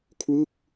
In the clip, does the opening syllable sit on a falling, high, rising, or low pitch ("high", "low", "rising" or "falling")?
falling